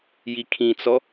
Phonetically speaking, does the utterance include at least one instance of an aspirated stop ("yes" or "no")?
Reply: yes